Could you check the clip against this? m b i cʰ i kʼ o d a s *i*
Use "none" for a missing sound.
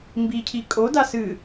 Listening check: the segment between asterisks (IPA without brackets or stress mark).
ɨ